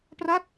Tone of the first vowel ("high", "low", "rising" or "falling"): falling